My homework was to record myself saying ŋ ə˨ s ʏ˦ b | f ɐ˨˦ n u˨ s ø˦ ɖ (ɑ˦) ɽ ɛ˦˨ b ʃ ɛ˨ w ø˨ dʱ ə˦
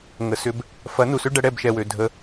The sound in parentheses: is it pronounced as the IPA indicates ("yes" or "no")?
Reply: no